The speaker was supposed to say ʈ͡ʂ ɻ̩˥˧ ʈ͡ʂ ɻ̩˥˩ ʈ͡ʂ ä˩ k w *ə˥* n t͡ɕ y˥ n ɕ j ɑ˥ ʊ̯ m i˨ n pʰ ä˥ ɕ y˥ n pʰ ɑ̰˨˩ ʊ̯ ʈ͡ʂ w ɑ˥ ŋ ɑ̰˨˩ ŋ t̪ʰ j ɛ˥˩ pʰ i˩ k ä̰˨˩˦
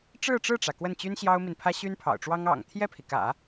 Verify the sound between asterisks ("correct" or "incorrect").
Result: incorrect